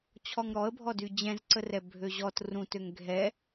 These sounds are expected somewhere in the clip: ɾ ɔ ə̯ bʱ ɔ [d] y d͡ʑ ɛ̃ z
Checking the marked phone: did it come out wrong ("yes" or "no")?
no